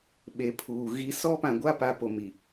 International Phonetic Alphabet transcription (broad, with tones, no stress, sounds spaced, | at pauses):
ɓ e˨ pʰ uː˨ ɣ i˦ s ɔ˦ p ã˨ ɡʷ a˦ p a˨ p o˨ m i˨